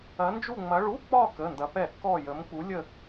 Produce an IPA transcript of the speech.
ɐ˧˥nd͡ʒu˥˧ŋ͡mɐ˧˥ ɭu˧˥˧k͡pɒ˥˧ kə˧˥˧ndɐ˧˥pɛ˥˧ʔ kɔ˥˧jə˧˥m k͡pu˧˥lʲə˥˧

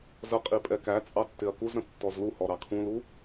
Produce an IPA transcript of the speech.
zəqʼipʼɛ kæt͡sʼɑtːɪɐ̯ kuzɾə̃tːɔz luhɔɾɑ kʰũlu

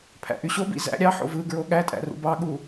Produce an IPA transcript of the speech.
pʰæ̰ʔyɕobḭ zæ̰ ɾʲɑħo̰ vɯ ɡɹoɠætʼæ̰ rṵbɑɠu

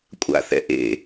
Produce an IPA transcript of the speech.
kʷʼa̰θɛ̰ ʔḛ

